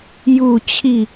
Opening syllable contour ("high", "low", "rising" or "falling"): falling